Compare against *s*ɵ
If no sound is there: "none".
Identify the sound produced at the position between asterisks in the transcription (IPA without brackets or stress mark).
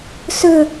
s